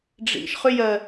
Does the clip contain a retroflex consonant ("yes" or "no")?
yes